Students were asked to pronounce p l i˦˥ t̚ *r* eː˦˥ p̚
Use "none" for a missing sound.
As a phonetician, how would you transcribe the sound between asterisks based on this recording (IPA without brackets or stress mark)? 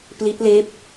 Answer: l